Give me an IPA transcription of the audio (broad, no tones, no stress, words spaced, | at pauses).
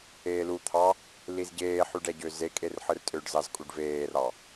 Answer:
eːlut̪ʰɑ | lizɟeːħyɖ æɟøzekʼer ħɯrtʼøɖzɑz kʼuɖveːrɑ